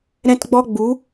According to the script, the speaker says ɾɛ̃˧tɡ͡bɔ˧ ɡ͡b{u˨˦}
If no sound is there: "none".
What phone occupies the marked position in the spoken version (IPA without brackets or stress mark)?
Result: u˨˦